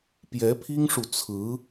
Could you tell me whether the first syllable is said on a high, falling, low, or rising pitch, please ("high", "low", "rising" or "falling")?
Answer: rising